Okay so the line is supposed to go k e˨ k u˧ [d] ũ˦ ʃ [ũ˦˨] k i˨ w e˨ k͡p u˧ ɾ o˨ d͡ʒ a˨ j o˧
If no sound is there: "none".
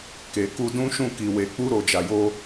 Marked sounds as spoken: d, ũ˦˨

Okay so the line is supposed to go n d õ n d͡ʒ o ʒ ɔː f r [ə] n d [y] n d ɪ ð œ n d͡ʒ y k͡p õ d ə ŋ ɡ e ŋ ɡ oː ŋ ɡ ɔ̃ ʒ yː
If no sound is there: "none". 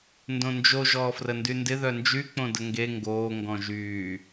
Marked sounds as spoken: ə, y

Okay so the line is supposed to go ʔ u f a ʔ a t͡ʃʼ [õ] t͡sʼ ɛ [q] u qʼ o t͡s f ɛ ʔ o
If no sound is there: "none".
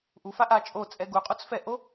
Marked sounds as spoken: o, ɡ

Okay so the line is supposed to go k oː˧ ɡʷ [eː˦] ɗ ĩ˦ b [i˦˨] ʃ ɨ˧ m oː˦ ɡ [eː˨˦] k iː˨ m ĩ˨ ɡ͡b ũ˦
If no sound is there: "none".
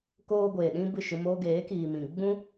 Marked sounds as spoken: eː˨, ɨ˦˨, eː˨˦

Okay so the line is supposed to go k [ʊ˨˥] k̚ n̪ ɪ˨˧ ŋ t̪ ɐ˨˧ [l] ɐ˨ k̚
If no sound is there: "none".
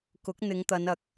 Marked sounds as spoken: ʊ˨˥, n

